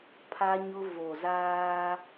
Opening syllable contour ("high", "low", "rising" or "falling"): high